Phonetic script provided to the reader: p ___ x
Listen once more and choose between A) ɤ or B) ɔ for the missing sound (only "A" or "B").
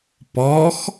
B